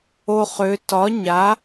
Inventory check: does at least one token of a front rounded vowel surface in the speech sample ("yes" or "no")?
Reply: yes